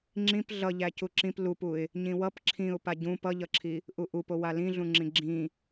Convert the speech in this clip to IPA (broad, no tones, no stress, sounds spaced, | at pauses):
ŋ͡ǁ ĩ p ɮ ʌ ʎ æ c u ǁ ĩ p l u p u ɪ̯ | ɲ ĩ w ʌ p ǁʰ ĩ ʊ̯ p a ɟ ũ p ʌ ʎ ʌ ǁʰ i | ʔ u ʔ u p o w a l ĩ ɮ ũ ŋ͡ǁ ĩ ɡ͡ǁ ĩ